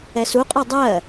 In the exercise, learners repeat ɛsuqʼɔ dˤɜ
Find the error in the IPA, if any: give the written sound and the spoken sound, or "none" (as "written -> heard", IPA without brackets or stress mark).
none